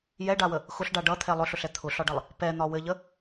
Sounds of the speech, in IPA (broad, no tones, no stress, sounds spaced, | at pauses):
j ɛ ɖ a w ə | x ʊ ɬ ɖ a ɖ ʌ t̪ʰ ɛ lˠ ʊ ɬ ʊ ɬ ɛ t̪ʰ ʊ ɬ ɒ ɖ ʌ lˠ | p ɛ n̪ ɒ w ɘ ʎ ə